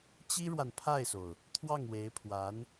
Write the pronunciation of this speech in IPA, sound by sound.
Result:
t͡ɕ i˥ ɻ w a˨ n pʰ a˥˩ ɪ̯ s o˩ ʊ̯ | t̪ʰ w ɑ˥˩ ŋ w e˧˥ ɪ̯ pʰ w a˧˥ n

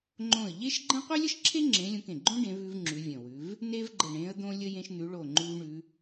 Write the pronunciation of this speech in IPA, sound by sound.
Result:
ŋ͡ǃ õ˧˩ ə̯ ʎ e˥ ʃ ɡ͡ǃ ə̃˥ qʷ e˥ lʲ ə˥ ʃ ǁʰ e˥ ŋ͡ǁ ẽ˧˥ lʲ õ˧˥ k ẽ˧˩ ɡ͡ǃ õ˥ ɖ ẽ˧˥ v ʉ˥ v ŋ͡ǁ ʉ˧˥ vʲ ə̃˧˩ w ʉ˧˥ v | n e˥ v ɡ͡ǃ ə˧˩ ɳ ẽ˧˥ ə̯ d̪ õ˥ lʲ ə˥ j ẽ˥ ʃ n̪ ʉ˧˥ ɭ o˧˩ ŋ͡ǃ ʉ˥ v ɳ ʉ˧˥

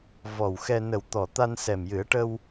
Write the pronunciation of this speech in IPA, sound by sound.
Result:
v ɔ˨˩ w x ɛ˧ n ə˨˩ w t̪ ɔ˨˩ t̪ a˧ n s ɛ˨˩ m j ɨ˨˩˦ ə̯ ʈ ə˧ w

